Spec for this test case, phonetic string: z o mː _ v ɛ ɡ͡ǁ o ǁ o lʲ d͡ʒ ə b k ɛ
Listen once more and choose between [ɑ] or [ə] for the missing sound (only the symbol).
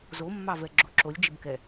ɑ